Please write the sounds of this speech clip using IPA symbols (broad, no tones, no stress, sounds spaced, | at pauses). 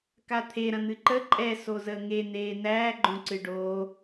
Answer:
k a t̪ʰ e ɾ ɐ̃ n̪ ɨ ǃ ə ǃʼ ɛ s o z əː ŋ e n̪ eː n̪ æː ɡ͡ǃ õ ǀ ɨ ɖ oː